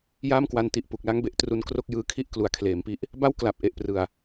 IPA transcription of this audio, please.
j aː˥˩ m k w a˧ n t i˨˩ ʔ p u˨˩ k̚ l a˦˥ ŋ b e˨˩ ʔ t r u˧ n k r o˥˩ k̚ j ɯː˦˥ kʰ i˥˩ ʔ k l u˩˦ a̯ kʰ l eː˩˦ m p i˦˥ ʔ | b a˥˩ w k l a˨˩ p̚ ʔ e˨˩ ʔ p r ɯ˨˩ a̯

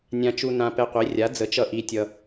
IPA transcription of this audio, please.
nʲ ã˧ t͡ʃ u˧ n ã˧ p ɛ˧ qʷ i˩˥ rʲ a˩˥ d͡z ə˩˥ t͡ʃ ʌ˧ ʔ i˧ tʲ ʌ˧

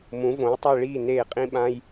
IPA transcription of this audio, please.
m ũ˩˥ v õ˩˥ j tˤ i˥˩ ɭ iː˥˩ n eː˧˩ qʼ ĩ˧ ɓ ã˧ j

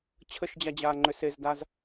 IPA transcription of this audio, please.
t͡ɕʰ ə ʃ d͡ʑ a d͡ʑ aː ŋ͡ǃ ʏ s e z d a z

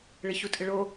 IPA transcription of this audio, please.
ɭ ɪ ç u tʼ ɪ ɭ o

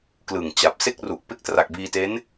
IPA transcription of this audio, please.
k l ɯ˨˩ ŋ t͡ɕ a˨˩ p̚ s e˥˩ k̚ r u˨˩ ʔ p e˥˩ k̚ t r a˨˩ k̚ b iː˧ t e˦˥ n

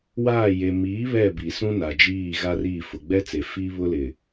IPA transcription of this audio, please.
w aː˦˨ j e˨ m iː˨˦ β ɛ˦˨ b i˨ s ũ˦ n a˨ d͡ʒ iː˦˨ ɣ a˦ r iː˦˨ f ʊ˨ ɡ͡b ɛ˦ t͡s e˨ f iː˦ β ʊ˦ l ɪ˨

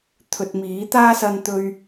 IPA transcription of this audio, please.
t̪ʰ ɵ˨ t̚ m iː˨˥ t̪ aː˥ s ɐ˧ n t̪ ɵ˧ ɥ

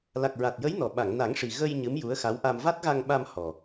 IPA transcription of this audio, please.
l a˨˩ k̚ ɹ a˨˩ t̚ j ə˧˥ j n ɔ˨˩ ɓ a˨˩˨ ŋ n a˨˩˦ ŋ ʂ i˨˩ ɣ ə˧ j ɲ ɨ˧˥ m j u˧˥ ə̯ x a˧˥ w ʔ a˧ m v a˦˥ t̚ ɣ a˧ ŋ ɓ a˧ m h ɔ˨˩

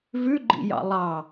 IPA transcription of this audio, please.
v ʉ ɡ͡ǃ ḭ j ɑ̰ lˠ ɑ

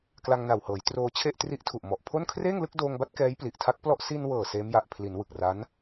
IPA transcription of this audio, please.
k l a˧ ŋ n a˨˩ w h ɤː˩˦ j t r oː˧ t͡ɕʰ e˥˩ ʔ t r i˦˥ ʔ tʰ u˨˩ ʔ m ɔ˨˩ ʔ pʰ o˥˩ n kʰ r eː˥˩ ŋ l ɯ˥˩ k̚ d oː˧ ŋ b a˦˥ t̚ k ɛː˦˥ j p l i˨˩ ʔ tʰ a˦˥ k̚ p l ɔ˥˩ ʔ s i˧ n w ɤː˨˩ s eː˦˥ m j a˨˩ ʔ pʰ l i˩˦ n w ɯ˨˩ k̚ r a˦˥ n

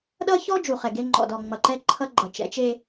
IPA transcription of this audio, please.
ɗ ʌ˦ ç ɔ˦ d͡ʒ u˨ χ ɛ˨ ɡ e˦ ŋ͡ǃ ɔ̰˨ d ɔ˨ ŋ͡m ʌ˨ ǃ ɛ˦ ǃʰ ʌ˦ ɡ͡ǃ ʌ˨ t͡ʃ ɛ̰˨˦ t͡ʃ e˦

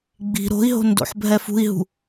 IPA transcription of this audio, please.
ɡ͡b i̤ ɾ o̤ i̯ ɦ o̤ n d o̰ ħ bʱ ɛ f ṳ i̯ ɦ ṳ

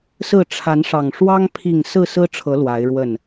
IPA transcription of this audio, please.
s ɹ̩˥˨ ʈ͡ʂʰ a˨˦ n ʂ ɑ˨˩ ŋ ʂ w ɑ˦ ŋ pʰ i˥˨ ŋ s ɹ̩˥˨ s ɹ̩˦ ʈ͡ʂʰ ɤ˨˦ l w a˨˦ ɪ̯ ɻ w ə˥˨ n

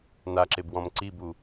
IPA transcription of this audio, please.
n a ǁ e b w ɔ̃ m ǀ i b u

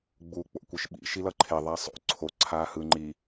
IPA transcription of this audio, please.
ɡ͡b uː k͡p o̰ kʷ ɯ ʃ ɓ ḭ ʃ i l ʌ ǃʰ e ðˤ a sˤ o̰ ǀʰ o ǀʰ aː h ɯ ŋ͡ǃ i

